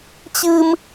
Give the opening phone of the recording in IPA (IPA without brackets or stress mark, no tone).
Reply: t͡ɕ